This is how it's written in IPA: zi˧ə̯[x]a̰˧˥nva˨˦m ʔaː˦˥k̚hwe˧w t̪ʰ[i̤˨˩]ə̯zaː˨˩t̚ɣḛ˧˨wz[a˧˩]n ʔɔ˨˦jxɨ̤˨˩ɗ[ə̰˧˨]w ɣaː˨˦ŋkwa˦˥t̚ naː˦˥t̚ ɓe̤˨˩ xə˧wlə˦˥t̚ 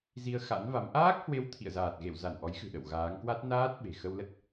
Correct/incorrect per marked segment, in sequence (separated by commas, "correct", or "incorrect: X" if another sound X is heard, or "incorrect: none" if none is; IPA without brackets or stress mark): correct, incorrect: ḭ˧˨, correct, correct